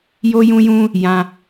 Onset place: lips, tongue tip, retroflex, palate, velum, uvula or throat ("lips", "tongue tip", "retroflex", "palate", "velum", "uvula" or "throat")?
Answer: palate